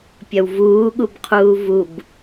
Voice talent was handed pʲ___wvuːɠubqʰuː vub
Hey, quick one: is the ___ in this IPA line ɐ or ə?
ɐ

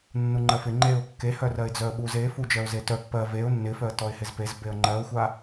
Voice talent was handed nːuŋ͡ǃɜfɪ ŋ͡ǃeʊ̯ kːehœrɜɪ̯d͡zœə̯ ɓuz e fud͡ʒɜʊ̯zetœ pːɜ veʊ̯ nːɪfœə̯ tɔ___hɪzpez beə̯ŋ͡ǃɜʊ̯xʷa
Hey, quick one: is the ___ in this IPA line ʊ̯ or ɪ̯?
ɪ̯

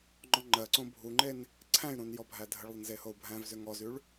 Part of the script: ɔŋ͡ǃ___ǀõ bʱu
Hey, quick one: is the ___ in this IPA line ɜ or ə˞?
ɜ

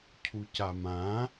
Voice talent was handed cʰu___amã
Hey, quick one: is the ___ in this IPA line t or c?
c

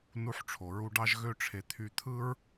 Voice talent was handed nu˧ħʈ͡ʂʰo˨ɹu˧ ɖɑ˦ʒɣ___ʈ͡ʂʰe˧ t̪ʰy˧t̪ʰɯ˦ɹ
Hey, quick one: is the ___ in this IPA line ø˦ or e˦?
ø˦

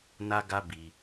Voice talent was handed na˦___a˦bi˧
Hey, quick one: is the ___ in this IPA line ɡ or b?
ɡ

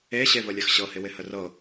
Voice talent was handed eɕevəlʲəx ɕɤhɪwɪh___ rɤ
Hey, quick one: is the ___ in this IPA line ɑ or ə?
ə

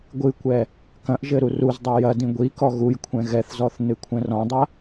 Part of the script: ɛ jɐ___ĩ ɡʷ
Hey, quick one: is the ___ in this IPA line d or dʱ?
d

